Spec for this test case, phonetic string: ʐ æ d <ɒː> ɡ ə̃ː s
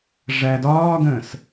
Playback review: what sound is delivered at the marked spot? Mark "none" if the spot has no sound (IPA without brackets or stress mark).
ɒː